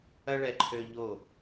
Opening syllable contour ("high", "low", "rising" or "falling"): high